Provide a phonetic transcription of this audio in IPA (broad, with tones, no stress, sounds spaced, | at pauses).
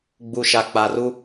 ɡ͡b u˨ ʃ a˨ k͡p a˨ r u˦